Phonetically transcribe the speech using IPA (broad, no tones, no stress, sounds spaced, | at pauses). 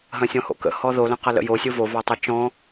ɦ ɐ̃ sʲ ɔ̃ h o̰ k ə̰ h ɔ ð o l ə̃ q ɐ l ə̰ j o sʲ ɯ v o v ɔ tˤ ɐ t͡ʃ ɔ̃